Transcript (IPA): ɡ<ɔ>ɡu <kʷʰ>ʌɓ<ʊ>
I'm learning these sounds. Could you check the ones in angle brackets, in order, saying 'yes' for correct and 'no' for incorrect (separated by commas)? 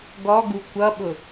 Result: yes, no, yes